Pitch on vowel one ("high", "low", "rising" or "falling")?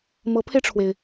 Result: rising